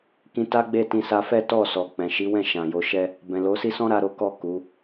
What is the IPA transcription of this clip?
k ĩ˧ t a˦ ɡ͡b e˦˨ t ĩ˧ s a˧ f ɛ˦ t ɔ˦˨ s ɔ˨ k͡p ɛ̃˨ ʃ i˨˦ w ɛ̃˦˨ ʃ ã˨ j o˧ ʃ ɛ˦ | b ɛ̃˨ l o˨˦ s i˦ s ɔ̃˦ ɾ a˧ ɾ o˦ k ɔ˦˨ k u˨˦

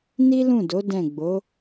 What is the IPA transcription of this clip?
n i˦ l ũ˦˨ d o˨˦ d ɛ̃˦˨ ɡ͡b o˨˦

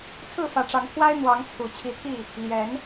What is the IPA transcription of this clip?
t͡sʰ ɹ̩˥˨ f ä˨˦ ʈ͡ʂ ɑ˨˦ ŋ t̪ʰ w a˦ ɪ̯ n̪ w ɑ˨˦ ŋ t͡sʰ u˨˩ t͡ɕʰ i˨˦ t̪ʰ i˥˨ | l j ɛ˨˦ n

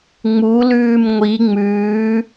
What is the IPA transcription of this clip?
ŋ͡m u l ʉː m ŋʷ i ŋ͡m ʉː

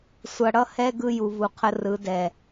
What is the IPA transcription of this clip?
sʷ ʌ˨ ɽ ʌ˦ h ɛ˦ ɡ ɯ˦ j u˨ v u˨ qʰ ə˦ r ɯ˨˦ d ɛ˨

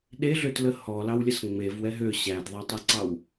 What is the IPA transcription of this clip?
ɗ e ɮ ø t l ə h ɔ l ɑ w lʲ ə s ŋ͡m e v w ɛ ɦ ø ɕ æ d ðˤ a tˤ æ ǀ ɑ w

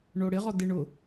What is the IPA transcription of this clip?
ɳ o ɽ ɪ ʁ ɔ d ɪ ɳ ʊ

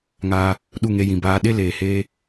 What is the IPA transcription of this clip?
ŋ aː˧ | ɗ u˦˨ ŋ e˧ j ĩ˨ b aː˧ ɗ e˦ l eː˨ h eː˦

